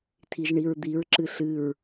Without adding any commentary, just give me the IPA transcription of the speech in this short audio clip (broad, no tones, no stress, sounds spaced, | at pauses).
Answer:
tʰ i ʒ ɳ i ɹ d̪ i ɹ ǁ ɨ ɬ ɨ ɹ